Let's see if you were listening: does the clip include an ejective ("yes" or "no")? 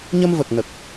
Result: no